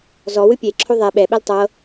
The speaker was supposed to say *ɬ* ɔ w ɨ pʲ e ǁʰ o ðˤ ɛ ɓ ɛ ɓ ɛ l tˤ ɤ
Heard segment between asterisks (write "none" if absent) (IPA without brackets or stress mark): z